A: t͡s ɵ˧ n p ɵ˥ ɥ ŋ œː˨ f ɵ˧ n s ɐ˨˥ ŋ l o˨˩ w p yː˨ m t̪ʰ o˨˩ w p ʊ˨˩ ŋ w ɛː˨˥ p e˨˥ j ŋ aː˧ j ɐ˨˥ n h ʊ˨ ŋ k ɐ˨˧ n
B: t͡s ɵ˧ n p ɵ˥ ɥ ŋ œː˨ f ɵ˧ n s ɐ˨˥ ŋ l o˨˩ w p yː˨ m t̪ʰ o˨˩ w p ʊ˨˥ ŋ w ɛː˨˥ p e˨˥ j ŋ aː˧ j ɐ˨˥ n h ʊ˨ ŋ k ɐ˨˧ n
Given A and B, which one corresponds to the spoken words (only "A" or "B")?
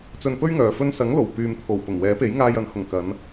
A